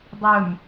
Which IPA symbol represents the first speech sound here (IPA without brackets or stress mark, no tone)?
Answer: dˤ